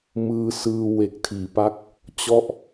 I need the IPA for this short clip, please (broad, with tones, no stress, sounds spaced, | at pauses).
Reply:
m ɯː˧ s ɯː˧ w e˨˩ k̚ tʰ iː˩˦ p a˦˥ k̚ | t͡ɕ ɔ˥˩ ʔ